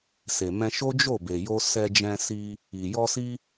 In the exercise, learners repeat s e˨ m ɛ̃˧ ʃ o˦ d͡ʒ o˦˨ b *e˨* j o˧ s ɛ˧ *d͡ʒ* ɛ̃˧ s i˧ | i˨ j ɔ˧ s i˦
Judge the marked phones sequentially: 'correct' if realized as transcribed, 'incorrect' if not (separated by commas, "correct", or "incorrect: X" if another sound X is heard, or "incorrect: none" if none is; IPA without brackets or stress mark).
correct, correct